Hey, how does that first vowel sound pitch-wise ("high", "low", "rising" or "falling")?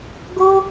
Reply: high